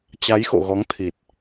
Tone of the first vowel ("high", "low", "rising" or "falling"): rising